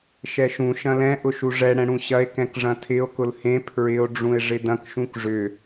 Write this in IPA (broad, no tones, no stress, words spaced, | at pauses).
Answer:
ʃɛʃũ ʃɐ̃lɛ̃ ʔʊʃuʐɛ ɽɛ̃ɽũɕɐe̯ kɛ̃kʐɐ̃tʰɪo̯ kʊlhẽ pʰɹɪo̯ ɖ͡ʐũe̯ʐɪdɐ̃k ʃũkʐʏ